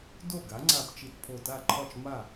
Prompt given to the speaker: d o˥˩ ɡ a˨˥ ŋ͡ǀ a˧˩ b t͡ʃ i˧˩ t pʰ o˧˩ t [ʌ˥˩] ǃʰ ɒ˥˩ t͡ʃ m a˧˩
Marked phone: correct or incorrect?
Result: incorrect: a˥˩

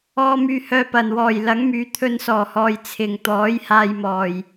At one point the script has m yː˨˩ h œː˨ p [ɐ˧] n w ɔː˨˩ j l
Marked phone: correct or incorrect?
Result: incorrect: ɐ˨˩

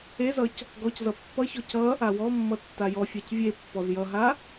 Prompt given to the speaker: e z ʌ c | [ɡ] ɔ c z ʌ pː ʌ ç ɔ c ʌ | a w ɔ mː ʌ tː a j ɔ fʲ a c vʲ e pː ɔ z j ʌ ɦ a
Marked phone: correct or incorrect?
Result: correct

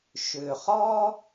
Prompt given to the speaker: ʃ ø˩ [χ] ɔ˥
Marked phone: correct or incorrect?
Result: correct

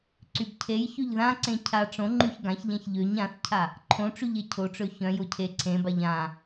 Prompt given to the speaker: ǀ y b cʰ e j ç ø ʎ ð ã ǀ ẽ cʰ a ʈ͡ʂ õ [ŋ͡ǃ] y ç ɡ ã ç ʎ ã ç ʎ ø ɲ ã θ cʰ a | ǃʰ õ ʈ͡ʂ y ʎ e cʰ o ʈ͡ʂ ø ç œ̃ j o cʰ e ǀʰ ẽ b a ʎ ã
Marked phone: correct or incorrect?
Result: correct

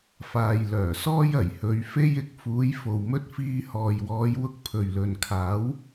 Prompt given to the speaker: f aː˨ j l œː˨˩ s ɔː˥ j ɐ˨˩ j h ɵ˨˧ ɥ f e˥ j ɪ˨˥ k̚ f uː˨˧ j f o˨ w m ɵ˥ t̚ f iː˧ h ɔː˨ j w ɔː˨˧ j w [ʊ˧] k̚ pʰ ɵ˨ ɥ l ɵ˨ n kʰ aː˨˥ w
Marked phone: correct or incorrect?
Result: correct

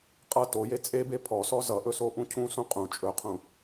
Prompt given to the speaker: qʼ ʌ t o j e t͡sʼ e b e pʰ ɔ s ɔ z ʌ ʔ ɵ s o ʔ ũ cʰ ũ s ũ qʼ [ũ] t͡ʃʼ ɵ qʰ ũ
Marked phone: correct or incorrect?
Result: correct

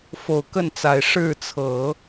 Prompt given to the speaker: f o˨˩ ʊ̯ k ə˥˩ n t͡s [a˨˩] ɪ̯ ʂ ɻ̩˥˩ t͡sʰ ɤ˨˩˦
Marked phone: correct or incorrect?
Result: correct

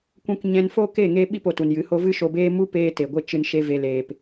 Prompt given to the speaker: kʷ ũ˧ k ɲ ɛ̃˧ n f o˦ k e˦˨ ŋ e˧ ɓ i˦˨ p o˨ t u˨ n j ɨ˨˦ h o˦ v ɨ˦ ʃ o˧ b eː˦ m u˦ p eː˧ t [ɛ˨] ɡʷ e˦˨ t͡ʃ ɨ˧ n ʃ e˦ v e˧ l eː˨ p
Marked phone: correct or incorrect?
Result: incorrect: e˨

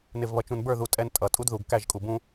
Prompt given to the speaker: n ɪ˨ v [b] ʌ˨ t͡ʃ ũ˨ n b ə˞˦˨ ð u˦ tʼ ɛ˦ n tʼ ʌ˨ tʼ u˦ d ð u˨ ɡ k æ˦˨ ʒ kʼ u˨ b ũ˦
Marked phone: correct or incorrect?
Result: incorrect: β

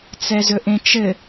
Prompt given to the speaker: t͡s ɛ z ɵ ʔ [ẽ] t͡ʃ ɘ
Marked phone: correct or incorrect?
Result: correct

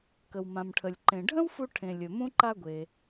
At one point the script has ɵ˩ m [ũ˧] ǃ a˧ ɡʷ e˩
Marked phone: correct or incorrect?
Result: correct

